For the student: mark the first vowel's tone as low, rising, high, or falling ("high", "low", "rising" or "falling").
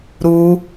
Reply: high